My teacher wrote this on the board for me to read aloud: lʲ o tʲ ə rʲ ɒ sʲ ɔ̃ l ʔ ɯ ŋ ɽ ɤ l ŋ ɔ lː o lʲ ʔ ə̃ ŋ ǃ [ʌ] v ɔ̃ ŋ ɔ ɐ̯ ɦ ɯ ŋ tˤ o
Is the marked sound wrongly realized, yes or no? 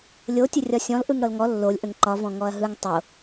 yes